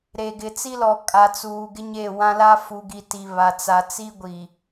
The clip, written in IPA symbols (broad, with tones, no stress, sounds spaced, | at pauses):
ɾ eː˨ ɡ ɪ˨ t͡s i˦ l ɔ˨ kʼ a˨ t͡s uː˨ ɡ ɪ˦ ɲ eː˦˨ w ã˦ l a˦ f u˨ ɡ i˨ t i˨ β a˨ t͡s a˨ t͡s iː˦ ɡʷ i˨